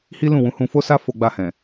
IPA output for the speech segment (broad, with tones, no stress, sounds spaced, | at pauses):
h i˦ l ũ˦˨ w ũ˨˦ h ũ˧ f o˦ s a˦ f o˧ ɡ͡b a˧ h ɛ̃˨